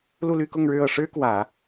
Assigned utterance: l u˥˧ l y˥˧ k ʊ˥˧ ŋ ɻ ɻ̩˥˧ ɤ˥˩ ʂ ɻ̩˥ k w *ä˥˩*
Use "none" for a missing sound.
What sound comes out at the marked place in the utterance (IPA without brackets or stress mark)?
ä˨˩˦